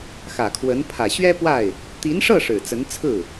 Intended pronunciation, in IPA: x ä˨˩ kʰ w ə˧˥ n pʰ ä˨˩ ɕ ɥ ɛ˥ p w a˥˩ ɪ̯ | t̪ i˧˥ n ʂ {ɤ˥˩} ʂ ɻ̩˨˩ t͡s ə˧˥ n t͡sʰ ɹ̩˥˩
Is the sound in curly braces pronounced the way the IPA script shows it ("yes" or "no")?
yes